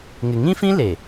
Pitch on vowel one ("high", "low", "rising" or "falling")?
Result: low